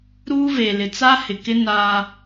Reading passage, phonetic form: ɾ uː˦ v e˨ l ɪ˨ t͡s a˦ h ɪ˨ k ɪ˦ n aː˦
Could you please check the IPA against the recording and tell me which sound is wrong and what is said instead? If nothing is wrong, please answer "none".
none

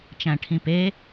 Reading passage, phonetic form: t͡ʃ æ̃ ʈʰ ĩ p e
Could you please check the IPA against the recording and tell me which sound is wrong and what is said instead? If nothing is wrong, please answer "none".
none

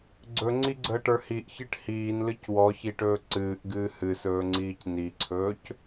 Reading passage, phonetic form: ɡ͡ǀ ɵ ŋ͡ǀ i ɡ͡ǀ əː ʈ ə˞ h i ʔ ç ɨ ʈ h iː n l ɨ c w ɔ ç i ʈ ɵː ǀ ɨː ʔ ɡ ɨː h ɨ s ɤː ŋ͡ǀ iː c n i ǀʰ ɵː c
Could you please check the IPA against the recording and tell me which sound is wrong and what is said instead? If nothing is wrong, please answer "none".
ɤː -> ɵː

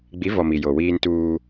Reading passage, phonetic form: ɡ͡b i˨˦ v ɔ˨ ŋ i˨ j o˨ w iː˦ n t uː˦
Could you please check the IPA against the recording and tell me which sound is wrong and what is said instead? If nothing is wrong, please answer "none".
ŋ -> m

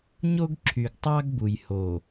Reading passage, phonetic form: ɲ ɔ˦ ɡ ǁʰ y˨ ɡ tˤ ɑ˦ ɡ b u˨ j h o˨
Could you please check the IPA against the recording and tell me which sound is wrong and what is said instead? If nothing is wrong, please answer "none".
ɔ˦ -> o˦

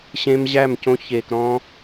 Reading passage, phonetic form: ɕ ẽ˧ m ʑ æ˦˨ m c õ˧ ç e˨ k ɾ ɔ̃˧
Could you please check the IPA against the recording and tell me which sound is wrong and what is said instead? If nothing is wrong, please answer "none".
none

